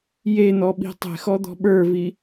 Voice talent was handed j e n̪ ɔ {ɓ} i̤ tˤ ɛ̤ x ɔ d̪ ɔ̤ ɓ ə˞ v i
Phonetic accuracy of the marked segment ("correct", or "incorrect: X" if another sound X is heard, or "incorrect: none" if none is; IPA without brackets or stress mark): correct